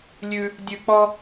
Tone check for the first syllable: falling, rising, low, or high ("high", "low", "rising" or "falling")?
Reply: high